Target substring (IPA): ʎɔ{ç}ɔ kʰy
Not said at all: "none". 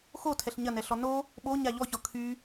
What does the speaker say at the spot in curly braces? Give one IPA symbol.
ç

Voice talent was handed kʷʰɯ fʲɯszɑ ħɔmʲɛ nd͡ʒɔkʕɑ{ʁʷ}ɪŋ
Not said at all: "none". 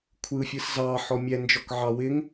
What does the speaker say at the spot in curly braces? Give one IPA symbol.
w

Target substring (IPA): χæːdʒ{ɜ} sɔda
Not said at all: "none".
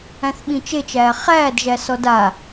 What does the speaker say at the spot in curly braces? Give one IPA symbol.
æ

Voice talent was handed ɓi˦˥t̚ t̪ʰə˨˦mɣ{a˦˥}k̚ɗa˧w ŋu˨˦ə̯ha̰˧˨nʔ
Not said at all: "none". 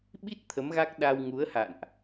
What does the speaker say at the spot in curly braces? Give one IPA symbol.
a˦˥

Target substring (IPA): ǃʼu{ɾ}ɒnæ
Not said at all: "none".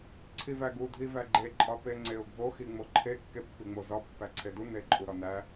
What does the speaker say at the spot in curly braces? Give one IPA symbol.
ɾ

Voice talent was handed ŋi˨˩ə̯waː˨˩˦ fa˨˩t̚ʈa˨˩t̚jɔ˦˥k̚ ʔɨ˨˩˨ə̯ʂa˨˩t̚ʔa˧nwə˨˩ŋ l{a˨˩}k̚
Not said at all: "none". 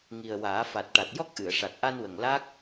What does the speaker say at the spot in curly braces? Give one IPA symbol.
a˦˥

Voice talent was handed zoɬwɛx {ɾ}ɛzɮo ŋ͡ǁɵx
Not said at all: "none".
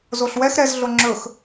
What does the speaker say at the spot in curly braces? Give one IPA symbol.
ɾ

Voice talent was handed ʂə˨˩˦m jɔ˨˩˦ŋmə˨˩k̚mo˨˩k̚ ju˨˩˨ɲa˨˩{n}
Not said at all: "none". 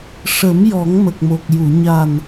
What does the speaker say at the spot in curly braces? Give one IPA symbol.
n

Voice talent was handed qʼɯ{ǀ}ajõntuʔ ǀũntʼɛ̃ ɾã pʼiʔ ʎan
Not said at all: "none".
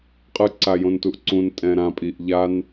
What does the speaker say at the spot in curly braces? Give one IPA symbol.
ǀ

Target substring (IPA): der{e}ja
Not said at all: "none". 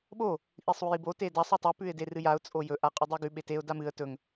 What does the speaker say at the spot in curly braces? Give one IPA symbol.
ɨ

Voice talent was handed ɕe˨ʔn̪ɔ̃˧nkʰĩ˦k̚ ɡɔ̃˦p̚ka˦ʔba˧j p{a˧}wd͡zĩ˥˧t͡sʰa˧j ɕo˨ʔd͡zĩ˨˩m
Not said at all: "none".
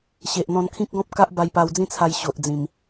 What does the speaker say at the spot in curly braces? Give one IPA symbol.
a˧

